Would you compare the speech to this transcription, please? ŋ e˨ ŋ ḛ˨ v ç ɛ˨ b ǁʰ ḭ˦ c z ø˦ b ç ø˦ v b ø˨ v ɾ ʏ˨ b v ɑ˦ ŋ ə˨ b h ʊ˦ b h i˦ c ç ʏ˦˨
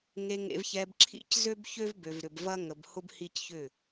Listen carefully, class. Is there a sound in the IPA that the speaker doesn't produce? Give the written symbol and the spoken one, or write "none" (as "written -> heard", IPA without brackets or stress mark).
ɑ˦ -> ɐ˦